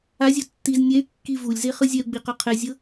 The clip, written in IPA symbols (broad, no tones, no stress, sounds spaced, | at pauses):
a zʲ o tː i z nʲ ɛ y̯ kː i v u lʲ z e χ ɯ zʲ ɛ u̯ ɡ͡b i q ɔ qʰ ɛ zʲ ɤ